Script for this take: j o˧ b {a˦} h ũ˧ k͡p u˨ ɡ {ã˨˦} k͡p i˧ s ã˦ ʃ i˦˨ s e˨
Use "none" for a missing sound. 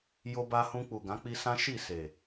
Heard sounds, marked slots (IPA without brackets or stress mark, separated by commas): a˧, ã˨˦